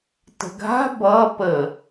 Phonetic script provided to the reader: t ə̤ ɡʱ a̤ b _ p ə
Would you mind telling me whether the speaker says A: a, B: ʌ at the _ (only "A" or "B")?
B